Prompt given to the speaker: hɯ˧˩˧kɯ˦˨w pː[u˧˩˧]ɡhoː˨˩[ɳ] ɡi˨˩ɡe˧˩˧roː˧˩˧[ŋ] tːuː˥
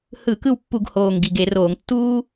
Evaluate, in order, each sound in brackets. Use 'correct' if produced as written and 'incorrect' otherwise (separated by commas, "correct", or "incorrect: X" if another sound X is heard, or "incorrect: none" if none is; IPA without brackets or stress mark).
correct, incorrect: ŋ, correct